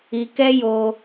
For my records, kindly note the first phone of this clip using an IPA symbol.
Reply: i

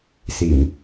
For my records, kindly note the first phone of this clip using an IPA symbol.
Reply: s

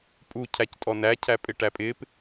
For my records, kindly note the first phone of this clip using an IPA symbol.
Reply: pʼ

